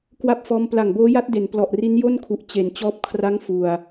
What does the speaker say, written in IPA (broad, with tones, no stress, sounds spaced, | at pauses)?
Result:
k w a˥˩ p̚ f ɔː˦˥ m p l a˨˩ ŋ b oː˦˥ j a˦˥ t̚ d e˩˦ n p l ɔ˨˩ ʔ r i˦˥ n j o˥˩ n kʰ u˨˩ ʔ t͡ɕ e˩˦ n t͡ɕ ɔː˦˥ p̚ kʰ r a˦˥ ŋ f u˨˩ a̯